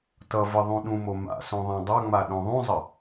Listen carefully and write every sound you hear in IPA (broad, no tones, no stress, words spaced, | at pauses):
tʌ və ðˤũɗũmo ma̰sõ ðˤɛ̃dˤʌŋ͡ma ɗõðˤũzˤə